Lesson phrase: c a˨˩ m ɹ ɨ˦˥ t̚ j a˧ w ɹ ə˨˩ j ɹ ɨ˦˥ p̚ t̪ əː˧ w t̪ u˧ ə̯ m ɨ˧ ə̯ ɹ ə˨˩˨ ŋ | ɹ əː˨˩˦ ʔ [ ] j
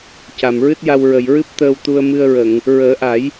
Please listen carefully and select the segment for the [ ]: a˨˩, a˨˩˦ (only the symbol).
a˨˩˦